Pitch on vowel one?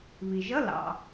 low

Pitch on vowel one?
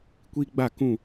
high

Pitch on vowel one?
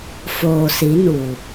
low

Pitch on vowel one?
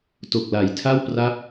low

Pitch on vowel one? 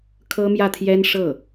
high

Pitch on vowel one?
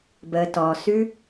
low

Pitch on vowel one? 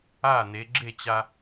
falling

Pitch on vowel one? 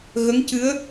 rising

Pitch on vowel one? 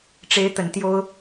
high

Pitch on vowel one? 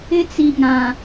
high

